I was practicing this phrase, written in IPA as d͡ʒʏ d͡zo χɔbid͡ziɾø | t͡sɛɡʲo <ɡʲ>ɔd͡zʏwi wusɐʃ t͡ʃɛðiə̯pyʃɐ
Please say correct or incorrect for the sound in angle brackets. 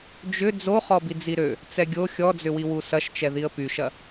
incorrect